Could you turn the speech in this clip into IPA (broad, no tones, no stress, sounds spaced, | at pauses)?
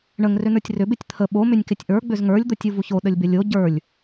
ɳ ə ŋ r ʏ n ə˞ tʲ r ʏ b ɪ tʲ t̪ʰ ə ɓ o m ʏ nʲ k ɪ tʲ ʔ ə˞ ɡ͡b ʏ z ŋ ə˞ lʲ d̪ o tʲ u v u ç o ɗ ə lʲ b ɪ lʲ o ɟ ə˞ lʲ